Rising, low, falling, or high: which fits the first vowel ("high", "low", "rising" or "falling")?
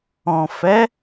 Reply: low